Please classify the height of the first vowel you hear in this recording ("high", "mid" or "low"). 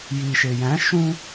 high